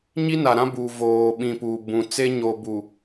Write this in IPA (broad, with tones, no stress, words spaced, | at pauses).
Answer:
ɲi˦na˨ɾã˦bu˨ voː˨ɓĩ˨ pu˨bũ˨ t͡se˦ɲo˨ bu˨